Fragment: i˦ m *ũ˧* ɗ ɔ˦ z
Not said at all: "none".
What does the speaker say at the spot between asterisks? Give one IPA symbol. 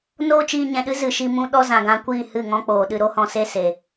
ũ˦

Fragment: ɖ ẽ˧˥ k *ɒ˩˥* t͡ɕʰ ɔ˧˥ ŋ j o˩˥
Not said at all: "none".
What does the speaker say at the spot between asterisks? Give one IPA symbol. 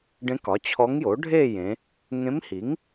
ɒ˩˥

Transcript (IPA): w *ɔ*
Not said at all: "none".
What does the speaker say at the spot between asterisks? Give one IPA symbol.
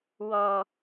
ɔ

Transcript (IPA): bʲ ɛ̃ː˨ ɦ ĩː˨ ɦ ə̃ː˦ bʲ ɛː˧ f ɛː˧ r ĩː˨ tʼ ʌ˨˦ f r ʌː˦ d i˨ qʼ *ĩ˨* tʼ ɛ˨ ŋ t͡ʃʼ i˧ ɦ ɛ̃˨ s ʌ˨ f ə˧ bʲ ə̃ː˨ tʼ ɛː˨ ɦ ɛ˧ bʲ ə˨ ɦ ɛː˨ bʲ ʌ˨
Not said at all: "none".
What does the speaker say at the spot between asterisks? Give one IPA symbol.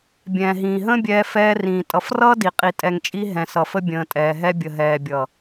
i˨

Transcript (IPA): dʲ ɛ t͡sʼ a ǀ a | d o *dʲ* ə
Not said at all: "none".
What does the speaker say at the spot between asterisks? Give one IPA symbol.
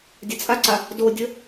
dʲ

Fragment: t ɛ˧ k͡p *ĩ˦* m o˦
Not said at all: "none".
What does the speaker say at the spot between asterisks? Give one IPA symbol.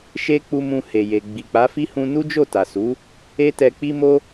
i˦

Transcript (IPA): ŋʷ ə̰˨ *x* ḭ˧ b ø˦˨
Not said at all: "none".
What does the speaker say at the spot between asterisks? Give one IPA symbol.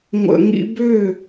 ŋ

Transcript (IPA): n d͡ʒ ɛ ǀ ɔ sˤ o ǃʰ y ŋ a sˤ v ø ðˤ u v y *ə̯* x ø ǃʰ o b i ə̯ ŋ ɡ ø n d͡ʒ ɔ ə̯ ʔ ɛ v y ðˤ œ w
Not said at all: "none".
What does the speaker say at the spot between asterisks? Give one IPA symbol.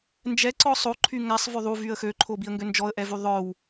ə̯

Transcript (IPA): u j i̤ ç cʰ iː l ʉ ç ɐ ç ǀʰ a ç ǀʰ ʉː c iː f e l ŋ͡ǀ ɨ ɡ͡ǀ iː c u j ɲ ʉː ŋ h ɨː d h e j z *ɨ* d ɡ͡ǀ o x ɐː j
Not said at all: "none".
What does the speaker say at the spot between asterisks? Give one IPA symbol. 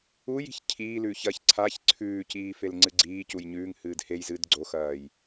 ɨː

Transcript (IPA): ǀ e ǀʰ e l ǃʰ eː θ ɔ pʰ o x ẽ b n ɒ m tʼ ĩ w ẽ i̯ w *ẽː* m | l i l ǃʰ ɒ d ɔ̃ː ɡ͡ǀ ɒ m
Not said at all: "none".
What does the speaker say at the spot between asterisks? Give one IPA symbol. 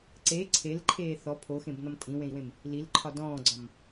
ẽ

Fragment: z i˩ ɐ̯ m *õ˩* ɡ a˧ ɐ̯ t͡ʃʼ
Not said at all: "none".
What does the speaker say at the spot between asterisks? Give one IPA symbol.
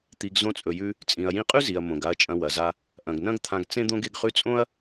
õ˩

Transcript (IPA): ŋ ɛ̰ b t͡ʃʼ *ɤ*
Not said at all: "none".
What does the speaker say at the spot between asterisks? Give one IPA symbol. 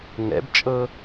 ɤ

